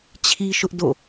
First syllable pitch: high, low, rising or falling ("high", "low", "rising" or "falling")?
high